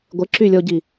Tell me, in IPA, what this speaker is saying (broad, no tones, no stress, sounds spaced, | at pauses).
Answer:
ɡʷ ɪ ǁ y lʲ ɔ ɟ i